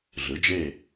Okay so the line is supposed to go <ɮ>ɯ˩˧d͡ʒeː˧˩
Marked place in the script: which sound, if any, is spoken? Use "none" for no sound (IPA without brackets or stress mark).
ɮ